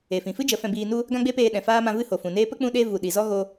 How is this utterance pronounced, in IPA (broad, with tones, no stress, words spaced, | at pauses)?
e˨fĩ˨fɨ˦ d͡ʒə˨˦fɛ̃˧biː˧nu˦ | ɡã˦ɡ͡be˦peː˧ ɗɛ̃˨faː˦mã˧ vɨ˦ ho˨fũ˨neː˦ pə˦k͡pũ˧ɗe˧ vu˨ɗi˨zɔ˦ ɣo˧